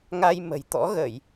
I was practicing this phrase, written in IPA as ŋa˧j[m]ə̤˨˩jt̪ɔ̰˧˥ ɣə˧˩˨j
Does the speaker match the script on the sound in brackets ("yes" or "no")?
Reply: yes